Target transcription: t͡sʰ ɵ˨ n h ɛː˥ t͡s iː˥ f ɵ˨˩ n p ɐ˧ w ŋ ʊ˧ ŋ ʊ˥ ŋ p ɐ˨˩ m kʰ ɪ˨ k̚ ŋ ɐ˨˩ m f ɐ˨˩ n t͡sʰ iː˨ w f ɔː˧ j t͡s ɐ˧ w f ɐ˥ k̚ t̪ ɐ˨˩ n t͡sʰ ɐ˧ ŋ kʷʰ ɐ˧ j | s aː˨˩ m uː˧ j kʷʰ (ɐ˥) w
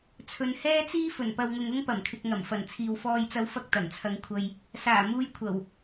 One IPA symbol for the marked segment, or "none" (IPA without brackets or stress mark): ɐ˨˩